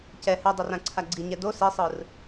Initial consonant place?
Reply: palatal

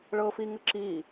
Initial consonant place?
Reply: retroflex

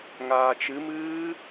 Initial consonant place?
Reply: velar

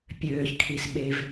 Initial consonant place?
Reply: labial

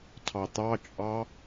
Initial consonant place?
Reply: alveolar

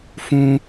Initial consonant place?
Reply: labial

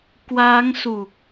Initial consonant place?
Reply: velar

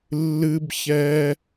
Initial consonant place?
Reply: alveolar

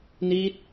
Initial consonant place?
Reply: alveolar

